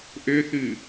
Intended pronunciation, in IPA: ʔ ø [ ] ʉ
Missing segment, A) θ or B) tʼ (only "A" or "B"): A